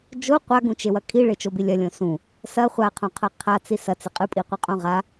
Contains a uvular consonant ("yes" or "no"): yes